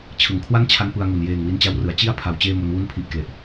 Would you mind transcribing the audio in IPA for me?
t͡ɕʰ ɯ˨˩ ŋ kʰ w a˥˩ n t͡ɕʰ a˦˥ n p ɯ˧ a̯ ŋ u˨˩ n j eː˨˩ ŋ w i˧ n t͡ɕ a˦˥ w r ɯ˩˦ a̯ t͡ɕ i˥˩ a̯ pʰ a˨˩ w t͡ɕ eː˥˩ m o˧ n w u˥˩ n pʰ i˦˥ ʔ k l e˨˩ ʔ

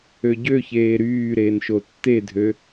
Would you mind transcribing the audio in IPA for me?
ø ɟ ø ç eː ɾ yː ɾ eː n ʃ o tː e dʱ ø

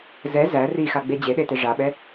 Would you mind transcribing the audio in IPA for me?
z ɛ z æ r i x a ɡ͡b e d͡ʑ e ɗ e t e ʐ a ɓ ɛ

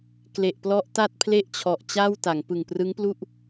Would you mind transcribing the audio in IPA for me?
k l e˨˩ ʔ p l ɔ˦˥ ʔ t a˥˩ t̚ pʰ l e˥˩ ʔ t͡ɕʰ ɔ˨˩ ʔ t͡ɕ a˥˩ w t a˩˦ ŋ p ɯ˨˩ ŋ p r ɯ˦˥ ŋ p l u˥˩ ʔ

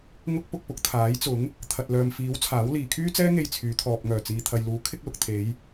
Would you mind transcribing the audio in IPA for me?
ŋ ʊ˥ k̚ p ʊ˧ k̚ p ʊ˨ k̚ t̪ʰ aː˨˥ j t͡s ʊ˨˥ ŋ | t̪ʰ ɐ˨ t̚ l œː˨ m f iː˨˥ w t͡sʰ aː˨˥ w l iː˨ kʰ yː˥ t͡s ɛː˥ ŋ e˧ j t͡sʰ yː˨˧ t̪ʰ ɔː˨ p̚ ŋ œː˨˩ t͡s iː˨ t̪ʰ ɐ˨ j l uː˨˥ kʰ ɪ˥ k̚ l ʊ˨ k̚ t̪ʰ e˨˧ j

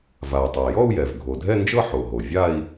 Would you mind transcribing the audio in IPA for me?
v a˩ u̯ tˤ ə˩ i̯ j ɔ˥˧ u̯ j ɛ˩ v ɡʱ o˩ dʱ ɛ˥˧ n d͡ʒ ɤ˥˧ ħ o˩ ɦ o˩ vʲ a˥˧ i̯

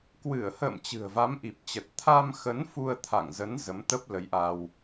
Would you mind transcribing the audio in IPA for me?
k w ɨ˧˩ ə̯ h ə̰ː˧˨ m t͡ɕ ɨ̤˨˩ ə̯ v a˨˦ m ʔ i˨˩ p̚ t͡ɕ ə˨˩ t̚ t̪ʰ a˧ m x ə˨˦ n f u˧ ə̯ t̪ʰ a̰˧˨ ŋ z ə˨˦ n z ə˨˦ m t̪ ə˦˥ p̚ l ə˨˦ j ʔ a˧ w

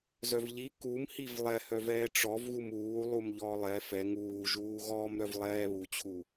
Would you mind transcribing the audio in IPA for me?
z œ v ʎ i k u m h i v lˠ ɛ h œ v ɛː ʈ͡ʂ ɔ v ɣ u m uː lˠ u m ʎ ɔː lˠ ɛ f ɛ ŋ uː ʒ uː ɣ ɔː m ɾ œ v lˠ ɛː β u t͡ɕʰ u

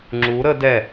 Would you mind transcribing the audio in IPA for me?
ŋ͡ǁ u ɾ ə d ɛ

